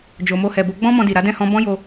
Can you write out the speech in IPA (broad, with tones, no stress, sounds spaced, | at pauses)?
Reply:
d͡ʒ o˨ m o˧ h ɛ˨ b o˧ ɡ͡b ɔ̃˦ m ɔ̃˧ d i˨ ɾ a˨˦ d ɛ̃˦˨ h ɔ̃˧ b ɔ̃˦ j o˧